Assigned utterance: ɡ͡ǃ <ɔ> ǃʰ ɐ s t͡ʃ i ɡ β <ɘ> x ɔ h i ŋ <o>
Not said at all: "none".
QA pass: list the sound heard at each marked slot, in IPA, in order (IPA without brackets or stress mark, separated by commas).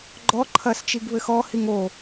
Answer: ɔ, ɘ, o